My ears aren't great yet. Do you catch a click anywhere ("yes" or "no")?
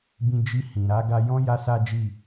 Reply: no